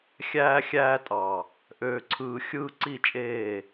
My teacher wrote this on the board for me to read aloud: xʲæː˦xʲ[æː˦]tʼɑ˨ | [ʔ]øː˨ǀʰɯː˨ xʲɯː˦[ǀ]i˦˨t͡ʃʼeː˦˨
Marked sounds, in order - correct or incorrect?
correct, correct, correct

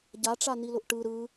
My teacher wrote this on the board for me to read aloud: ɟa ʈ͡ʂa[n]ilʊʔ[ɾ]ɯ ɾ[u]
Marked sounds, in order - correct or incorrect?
correct, incorrect: ʈ, incorrect: ɯ

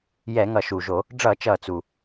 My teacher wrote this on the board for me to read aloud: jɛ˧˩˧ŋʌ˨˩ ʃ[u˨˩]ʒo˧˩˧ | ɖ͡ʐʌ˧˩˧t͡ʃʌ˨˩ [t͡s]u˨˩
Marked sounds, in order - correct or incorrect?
correct, correct

